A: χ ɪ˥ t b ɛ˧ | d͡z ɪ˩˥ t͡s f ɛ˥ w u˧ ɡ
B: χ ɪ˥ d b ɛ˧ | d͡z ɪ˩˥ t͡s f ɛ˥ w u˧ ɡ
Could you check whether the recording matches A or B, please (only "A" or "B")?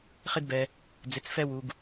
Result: B